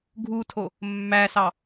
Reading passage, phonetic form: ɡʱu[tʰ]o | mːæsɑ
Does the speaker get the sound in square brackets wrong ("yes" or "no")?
no